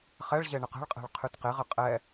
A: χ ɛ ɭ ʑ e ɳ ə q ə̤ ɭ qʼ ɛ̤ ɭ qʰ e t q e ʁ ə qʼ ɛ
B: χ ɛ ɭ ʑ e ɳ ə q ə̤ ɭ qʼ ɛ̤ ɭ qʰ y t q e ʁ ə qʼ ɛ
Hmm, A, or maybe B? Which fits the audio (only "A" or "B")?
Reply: B